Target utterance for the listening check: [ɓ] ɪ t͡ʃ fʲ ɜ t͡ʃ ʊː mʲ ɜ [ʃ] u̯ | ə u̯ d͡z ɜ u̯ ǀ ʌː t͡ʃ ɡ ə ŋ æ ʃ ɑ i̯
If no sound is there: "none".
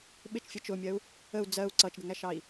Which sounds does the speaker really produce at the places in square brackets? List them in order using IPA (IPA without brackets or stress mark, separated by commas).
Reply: ɓ, none